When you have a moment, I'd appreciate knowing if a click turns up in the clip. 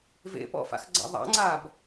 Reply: yes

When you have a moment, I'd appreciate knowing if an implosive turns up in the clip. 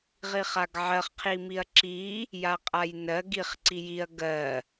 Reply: no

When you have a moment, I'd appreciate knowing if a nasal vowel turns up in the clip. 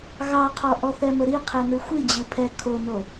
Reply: no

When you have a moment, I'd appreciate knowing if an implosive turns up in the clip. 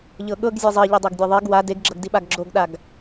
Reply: yes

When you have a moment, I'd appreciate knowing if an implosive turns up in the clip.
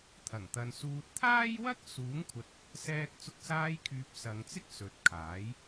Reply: no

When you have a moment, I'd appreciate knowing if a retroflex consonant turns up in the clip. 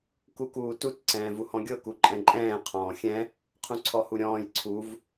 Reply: no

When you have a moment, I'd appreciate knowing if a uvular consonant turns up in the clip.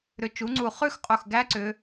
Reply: yes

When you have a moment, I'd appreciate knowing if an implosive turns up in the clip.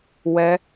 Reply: no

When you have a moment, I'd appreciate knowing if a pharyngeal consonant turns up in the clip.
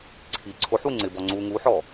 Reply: yes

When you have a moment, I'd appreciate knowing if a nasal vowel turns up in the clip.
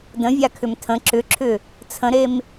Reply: yes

